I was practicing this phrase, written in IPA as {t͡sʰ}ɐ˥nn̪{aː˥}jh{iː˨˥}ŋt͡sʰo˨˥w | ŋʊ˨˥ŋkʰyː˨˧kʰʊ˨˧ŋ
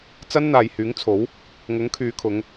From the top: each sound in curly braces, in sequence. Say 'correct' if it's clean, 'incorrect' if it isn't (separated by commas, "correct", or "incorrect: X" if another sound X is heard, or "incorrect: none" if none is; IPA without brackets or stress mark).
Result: incorrect: t͡s, incorrect: aː˨, incorrect: yː˨˥